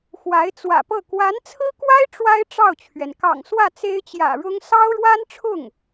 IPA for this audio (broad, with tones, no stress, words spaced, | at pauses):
xwa˧˥ɪ̯t͡swä̰˨˩pɤ˥˩ kwa˧˥nt͡sʰɹ̩˥kwa˥ɪ̯ ʈ͡ʂwa˥ɪ̯ ʈ͡ʂɑ˥˩ʊ̯t͡ɕʰɥɛ˩n kɑ̰˨˩ŋswä˥˩ t͡se˥ɪ̯t͡ɕjä̰˨˩ɻʊ˥ŋ sɑ˥ʊ̯ɻwa˥nʈ͡ʂʰʊ˥˩ŋ